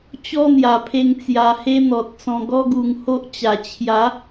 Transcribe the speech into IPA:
t͡ɕɔ˦n̪ja˨˩pʰe˧ŋ t͡sja˧he˦n̪ɔ˨t̚t͡sɔ̃˧ ɡɔ˦ɡu˨˩ŋho˦ʔt͡ɕa˨˩ t͡ɕʰja˨˦

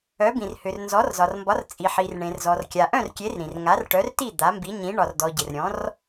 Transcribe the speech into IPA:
œ˨˥bĩ˨rhʏ˨r nzɔ˨˥rzɒ˨rmbɒ˨˥r t͡sʼi˨ħi˨r ɳẽ˨rzɔ˨r kʲa˨ʔœ̃˥˨rkʲe˨˥r ɾĩ˨r ŋa˨˥rʈœ˨˥rti˥˨ d̪a˨˥mbi˨˥ɲĩ˨˥ ɳɒ˨rdɔ˨ ɟɪ˨rɾʲɔ̃˨˥r

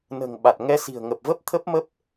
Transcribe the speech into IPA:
nə̤ː˨˩ŋ ɓa˨˩t̚ ŋɛ˧ si̤˨˩ə̯ŋə˨˩p̚və˦˥p̚ t̪ʰə˦˥p̚mə˦˥p̚

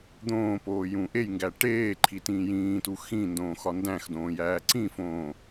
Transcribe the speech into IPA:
d̪õːpoː jũʔejŋɡæ ʈeːǃʰi tĩːjĩːtu xĩndõː xɒndæ̃xdõː jæːǀĩfõː

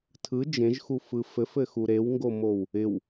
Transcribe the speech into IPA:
tʰɯ d͡ʒẽʒxufɯ fɘfɘxu ɾewŋɡomow | ɪw

